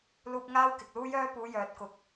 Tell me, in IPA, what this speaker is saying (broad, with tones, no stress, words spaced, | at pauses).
luː˧p̚ ŋaː˥wkɪ˨k̚ luː˥jœː˥puː˨˧ jœː˨t̚kʊ˨k̚